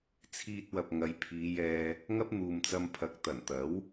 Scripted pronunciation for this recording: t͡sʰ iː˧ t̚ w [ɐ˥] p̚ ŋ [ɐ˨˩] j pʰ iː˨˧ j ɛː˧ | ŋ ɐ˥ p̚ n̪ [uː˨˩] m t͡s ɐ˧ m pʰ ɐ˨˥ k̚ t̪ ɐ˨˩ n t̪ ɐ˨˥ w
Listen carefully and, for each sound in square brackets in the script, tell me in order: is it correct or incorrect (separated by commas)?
incorrect, incorrect, incorrect